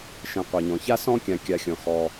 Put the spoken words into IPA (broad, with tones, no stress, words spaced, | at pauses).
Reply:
ʃɛ̃˨qʷɛ˩ɲɔ̃˩ça˥ sɔ̃˥kʲã˨kʲa˨xʲɔ̃˩ xɔ˩